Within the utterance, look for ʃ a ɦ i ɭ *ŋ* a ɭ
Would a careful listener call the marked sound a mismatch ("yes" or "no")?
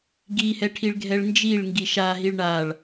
yes